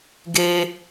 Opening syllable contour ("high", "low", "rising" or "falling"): low